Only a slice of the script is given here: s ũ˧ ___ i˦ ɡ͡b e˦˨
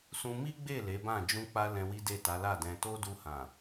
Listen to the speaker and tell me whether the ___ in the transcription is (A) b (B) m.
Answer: B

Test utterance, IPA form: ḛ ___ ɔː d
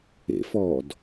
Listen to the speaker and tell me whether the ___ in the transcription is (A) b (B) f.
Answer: B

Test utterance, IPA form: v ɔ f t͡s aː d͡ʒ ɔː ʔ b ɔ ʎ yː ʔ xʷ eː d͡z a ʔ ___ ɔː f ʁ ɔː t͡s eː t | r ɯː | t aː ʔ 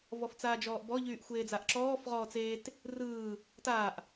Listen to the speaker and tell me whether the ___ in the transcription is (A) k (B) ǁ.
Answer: B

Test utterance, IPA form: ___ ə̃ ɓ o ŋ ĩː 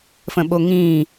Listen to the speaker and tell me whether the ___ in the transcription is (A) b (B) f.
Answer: B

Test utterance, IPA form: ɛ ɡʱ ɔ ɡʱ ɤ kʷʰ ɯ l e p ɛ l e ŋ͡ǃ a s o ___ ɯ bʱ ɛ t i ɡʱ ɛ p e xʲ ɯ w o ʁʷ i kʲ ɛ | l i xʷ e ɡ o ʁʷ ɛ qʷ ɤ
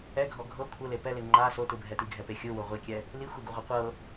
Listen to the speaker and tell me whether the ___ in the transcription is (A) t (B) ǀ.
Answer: A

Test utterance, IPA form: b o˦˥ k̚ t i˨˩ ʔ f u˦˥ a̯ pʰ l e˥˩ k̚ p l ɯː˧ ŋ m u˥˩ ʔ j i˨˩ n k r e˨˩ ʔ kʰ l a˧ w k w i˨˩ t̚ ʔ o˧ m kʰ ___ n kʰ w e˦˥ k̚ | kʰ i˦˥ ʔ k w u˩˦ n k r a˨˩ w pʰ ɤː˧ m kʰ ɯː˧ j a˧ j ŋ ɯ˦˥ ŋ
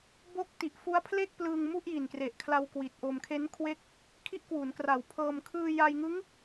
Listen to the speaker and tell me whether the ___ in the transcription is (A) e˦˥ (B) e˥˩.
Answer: A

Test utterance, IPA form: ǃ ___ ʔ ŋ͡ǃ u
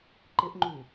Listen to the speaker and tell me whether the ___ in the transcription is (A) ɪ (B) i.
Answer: A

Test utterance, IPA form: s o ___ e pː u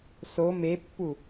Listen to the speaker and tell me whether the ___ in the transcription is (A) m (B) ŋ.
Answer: A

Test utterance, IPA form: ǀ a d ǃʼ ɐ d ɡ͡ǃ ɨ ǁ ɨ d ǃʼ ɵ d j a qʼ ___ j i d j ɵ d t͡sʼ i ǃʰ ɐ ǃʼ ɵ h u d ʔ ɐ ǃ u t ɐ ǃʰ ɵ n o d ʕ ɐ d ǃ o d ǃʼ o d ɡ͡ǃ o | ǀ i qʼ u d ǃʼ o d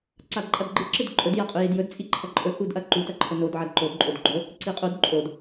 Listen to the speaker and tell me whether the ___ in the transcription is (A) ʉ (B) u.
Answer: A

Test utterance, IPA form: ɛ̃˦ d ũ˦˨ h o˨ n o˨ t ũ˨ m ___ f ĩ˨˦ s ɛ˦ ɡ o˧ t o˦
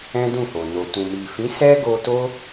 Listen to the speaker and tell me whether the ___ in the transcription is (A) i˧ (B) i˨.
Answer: B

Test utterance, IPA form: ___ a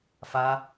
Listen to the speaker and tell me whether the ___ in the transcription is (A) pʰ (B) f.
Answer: B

